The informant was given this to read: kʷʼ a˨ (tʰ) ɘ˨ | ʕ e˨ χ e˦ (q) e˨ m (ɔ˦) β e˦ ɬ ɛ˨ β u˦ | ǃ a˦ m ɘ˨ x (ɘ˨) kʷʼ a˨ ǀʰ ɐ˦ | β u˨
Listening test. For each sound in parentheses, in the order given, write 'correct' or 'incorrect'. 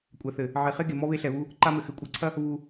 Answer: incorrect: θ, incorrect: ɡ, correct, correct

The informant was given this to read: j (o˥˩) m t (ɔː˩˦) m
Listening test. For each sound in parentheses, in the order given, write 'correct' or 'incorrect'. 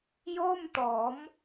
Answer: correct, correct

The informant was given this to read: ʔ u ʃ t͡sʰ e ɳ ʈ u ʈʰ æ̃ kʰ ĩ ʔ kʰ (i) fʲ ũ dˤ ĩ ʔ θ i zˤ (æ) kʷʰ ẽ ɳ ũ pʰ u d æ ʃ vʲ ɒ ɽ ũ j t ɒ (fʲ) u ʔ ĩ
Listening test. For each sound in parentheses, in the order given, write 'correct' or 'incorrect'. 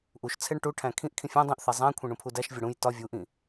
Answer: incorrect: ĩ, incorrect: æ̃, incorrect: vʲ

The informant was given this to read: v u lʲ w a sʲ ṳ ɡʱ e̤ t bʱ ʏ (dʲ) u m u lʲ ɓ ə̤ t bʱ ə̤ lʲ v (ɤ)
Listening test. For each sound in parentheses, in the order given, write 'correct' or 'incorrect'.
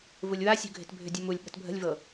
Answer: correct, correct

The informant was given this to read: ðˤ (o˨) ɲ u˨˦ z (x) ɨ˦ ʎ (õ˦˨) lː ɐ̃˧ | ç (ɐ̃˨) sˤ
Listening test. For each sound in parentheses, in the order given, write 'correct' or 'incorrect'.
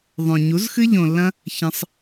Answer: incorrect: õ˨, correct, incorrect: õ˨, incorrect: ɐ̃˧

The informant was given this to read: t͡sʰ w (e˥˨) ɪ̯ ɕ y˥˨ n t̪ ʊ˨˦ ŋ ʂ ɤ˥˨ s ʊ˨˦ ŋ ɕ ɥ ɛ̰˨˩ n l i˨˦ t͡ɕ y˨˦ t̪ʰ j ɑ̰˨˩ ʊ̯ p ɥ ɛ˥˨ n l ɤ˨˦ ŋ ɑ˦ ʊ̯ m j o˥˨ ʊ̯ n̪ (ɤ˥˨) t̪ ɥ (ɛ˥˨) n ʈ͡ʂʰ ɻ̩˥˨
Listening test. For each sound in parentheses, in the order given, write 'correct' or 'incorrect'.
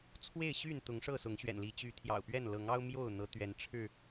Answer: correct, incorrect: ɤ˨˦, incorrect: ɛ˨˦

